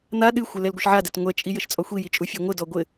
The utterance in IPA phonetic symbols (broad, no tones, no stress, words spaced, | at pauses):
n̪a ɗɨxʷɘ lɛlɡʷɨʃʕadɛt ŋʷɛt͡ʃʼi jɘʃt͡sʼɔxʷiji t͡ʃʼufʲɔŋʷɘdɔ ɡʷɘ